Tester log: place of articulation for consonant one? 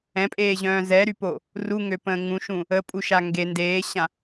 labial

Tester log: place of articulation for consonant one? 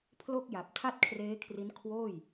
labial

